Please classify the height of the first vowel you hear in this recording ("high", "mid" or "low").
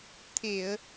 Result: mid